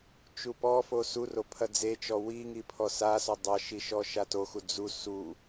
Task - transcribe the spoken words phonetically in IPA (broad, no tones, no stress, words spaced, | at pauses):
t͡ʃupɔfo suro pʰɐd͡zet͡ʃɔ wiŋi pʰɔsasɔ dˤɐʃi ʃɔʃatoxu d͡zu su